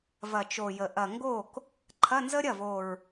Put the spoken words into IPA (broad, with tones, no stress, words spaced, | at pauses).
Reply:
vɐ˨˩t͡ʃo˨˩jə˨˩ ʔɐ˨˩ŋɡo˥˩k | ǃʰɐ˧˥˧nzə˥ɾʲɐ˥˩vo˨˩ɹ